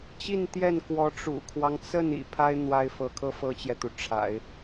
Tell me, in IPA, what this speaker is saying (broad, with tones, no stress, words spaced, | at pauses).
t͡ɕi˥˧nt̪jɛ˥˩nkwɔ˧˥ ʈ͡ʂṵ˨˩kʰwɑ˦ŋ t͡sə˥˩n ḭ˨˩pʰa˥ɪ̯ n̪wa˥ɪ̯fɤ˧˥ kʰɤ˥ fɤ˥t͡ɕjɛ˨t̪u˩ ʈ͡ʂʰa̰˨˩˦ɪ̯